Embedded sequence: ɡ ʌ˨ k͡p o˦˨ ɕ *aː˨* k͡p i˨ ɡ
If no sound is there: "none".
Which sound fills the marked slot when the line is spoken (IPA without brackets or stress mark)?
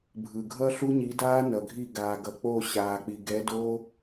aː˨